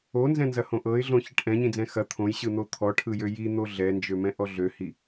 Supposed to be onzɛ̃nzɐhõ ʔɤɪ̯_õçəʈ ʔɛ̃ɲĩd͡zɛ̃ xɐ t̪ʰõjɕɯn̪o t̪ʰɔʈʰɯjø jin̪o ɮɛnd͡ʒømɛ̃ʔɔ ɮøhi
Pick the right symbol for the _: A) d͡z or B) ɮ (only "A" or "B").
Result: B